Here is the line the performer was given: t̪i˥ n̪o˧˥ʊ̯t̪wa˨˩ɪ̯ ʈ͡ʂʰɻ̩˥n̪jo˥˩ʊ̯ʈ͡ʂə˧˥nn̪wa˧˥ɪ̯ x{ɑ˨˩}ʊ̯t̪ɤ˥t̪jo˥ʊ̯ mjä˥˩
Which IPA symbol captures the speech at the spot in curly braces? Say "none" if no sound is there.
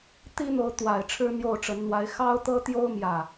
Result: ɑ˥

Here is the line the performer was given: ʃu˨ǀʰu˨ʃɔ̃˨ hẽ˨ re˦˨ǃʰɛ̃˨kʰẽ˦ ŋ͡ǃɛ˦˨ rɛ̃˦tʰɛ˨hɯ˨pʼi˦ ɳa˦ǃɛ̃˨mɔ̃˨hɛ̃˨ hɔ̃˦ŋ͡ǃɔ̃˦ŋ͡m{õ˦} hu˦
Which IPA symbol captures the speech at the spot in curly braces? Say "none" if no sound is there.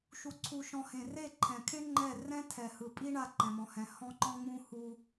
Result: ũ˦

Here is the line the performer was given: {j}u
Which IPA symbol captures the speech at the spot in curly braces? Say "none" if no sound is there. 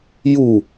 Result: j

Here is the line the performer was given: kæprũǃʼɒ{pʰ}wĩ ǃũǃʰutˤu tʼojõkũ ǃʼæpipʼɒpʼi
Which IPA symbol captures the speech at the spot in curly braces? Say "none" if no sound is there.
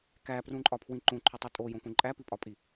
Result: pʰ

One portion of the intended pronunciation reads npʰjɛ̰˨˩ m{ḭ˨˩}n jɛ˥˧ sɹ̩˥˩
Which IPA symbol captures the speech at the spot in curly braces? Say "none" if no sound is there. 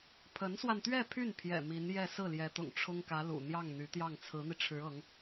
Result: i˧˥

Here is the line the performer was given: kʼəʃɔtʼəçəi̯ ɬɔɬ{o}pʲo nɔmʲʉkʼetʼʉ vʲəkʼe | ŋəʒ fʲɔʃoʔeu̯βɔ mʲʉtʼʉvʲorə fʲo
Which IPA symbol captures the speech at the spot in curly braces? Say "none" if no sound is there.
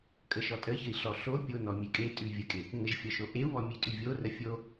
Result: o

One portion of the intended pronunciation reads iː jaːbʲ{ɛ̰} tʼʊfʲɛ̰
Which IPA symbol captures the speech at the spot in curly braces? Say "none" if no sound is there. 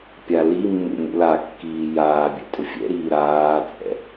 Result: ɛ̰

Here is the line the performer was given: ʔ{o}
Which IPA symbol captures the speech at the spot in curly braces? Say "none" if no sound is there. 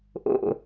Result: o̰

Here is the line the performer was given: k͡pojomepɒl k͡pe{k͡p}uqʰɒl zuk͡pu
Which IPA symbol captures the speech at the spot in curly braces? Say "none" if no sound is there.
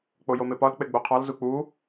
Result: ɡ͡b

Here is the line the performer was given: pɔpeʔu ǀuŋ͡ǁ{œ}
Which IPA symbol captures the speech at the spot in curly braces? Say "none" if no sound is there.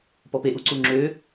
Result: ø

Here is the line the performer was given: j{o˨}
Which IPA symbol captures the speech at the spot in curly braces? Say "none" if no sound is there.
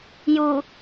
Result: u˨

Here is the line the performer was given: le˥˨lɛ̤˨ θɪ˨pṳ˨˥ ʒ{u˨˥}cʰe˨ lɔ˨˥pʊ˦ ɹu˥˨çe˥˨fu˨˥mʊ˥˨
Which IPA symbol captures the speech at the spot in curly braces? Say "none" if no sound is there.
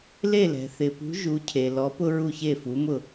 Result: u˨˥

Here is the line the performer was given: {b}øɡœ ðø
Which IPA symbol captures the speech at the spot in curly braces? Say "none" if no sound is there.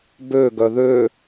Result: b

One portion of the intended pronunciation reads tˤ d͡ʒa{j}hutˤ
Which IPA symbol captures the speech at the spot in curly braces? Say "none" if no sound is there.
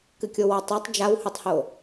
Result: w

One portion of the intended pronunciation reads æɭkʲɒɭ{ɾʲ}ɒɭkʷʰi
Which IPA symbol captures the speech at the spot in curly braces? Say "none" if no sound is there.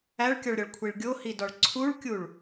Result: ɾʲ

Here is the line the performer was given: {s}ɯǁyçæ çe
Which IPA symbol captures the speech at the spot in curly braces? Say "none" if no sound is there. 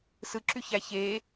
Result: s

